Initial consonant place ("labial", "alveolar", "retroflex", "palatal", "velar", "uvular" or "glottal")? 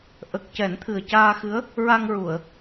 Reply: glottal